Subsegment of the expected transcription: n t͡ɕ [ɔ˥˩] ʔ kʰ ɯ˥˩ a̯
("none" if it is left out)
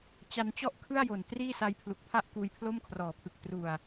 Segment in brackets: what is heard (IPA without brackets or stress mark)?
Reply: ɔ˥˩